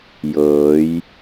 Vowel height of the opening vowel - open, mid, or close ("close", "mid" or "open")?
mid